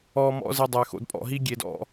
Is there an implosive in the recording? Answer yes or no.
no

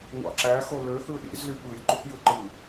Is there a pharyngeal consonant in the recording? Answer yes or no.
no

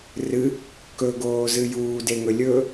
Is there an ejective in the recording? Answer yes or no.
no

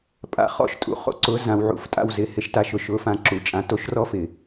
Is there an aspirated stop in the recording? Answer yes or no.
no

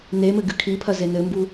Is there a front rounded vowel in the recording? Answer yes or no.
no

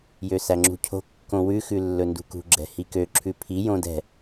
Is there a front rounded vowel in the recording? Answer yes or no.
yes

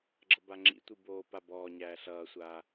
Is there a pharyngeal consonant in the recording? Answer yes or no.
no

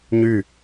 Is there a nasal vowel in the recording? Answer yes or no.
no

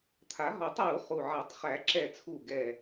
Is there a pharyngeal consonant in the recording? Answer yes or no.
yes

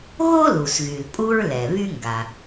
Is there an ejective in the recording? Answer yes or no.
yes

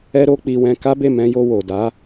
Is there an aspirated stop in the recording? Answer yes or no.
no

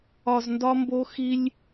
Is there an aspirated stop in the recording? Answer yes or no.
no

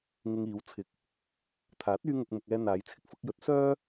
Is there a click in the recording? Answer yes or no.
no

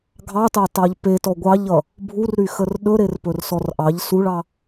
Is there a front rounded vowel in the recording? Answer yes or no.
yes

